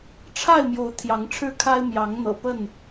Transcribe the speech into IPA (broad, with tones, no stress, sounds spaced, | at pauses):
ʈ͡ʂʰ a˥˨ ɪ̯ m j o˨˦ ʊ̯ t̪ʰ j ɑ˨˦ ŋ ʈ͡ʂʰ ɻ̩˦ kʰ a˦ ɪ̯ m j ɑ˨˦ ŋ n̪ ɤ̰˨˩ p ə˥˨ n